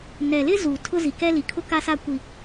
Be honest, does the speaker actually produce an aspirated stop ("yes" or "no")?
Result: yes